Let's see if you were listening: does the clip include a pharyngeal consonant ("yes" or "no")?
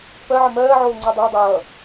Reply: yes